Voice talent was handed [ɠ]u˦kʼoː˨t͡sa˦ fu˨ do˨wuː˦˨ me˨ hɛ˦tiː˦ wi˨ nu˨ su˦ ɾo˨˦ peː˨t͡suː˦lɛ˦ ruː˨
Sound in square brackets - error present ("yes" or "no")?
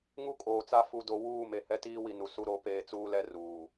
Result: yes